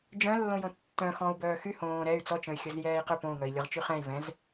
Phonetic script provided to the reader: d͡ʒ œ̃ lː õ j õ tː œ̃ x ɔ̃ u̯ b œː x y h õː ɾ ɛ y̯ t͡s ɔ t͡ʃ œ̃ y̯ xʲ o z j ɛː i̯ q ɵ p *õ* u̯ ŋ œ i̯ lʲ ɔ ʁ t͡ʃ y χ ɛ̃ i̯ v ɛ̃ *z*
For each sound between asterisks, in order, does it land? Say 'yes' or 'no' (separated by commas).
yes, yes